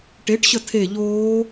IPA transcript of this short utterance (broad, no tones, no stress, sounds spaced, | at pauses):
ʈ e ʈ ɕ ə tʰ e ʎ oː